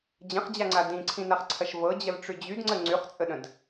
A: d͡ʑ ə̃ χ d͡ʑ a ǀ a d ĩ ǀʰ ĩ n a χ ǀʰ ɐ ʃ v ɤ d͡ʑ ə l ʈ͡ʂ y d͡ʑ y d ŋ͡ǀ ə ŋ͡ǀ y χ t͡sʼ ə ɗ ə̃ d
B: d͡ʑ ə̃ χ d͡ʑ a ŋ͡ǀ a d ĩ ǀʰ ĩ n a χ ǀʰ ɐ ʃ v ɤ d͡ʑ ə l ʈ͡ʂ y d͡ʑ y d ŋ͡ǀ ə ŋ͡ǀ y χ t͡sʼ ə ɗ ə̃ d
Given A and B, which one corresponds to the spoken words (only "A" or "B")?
B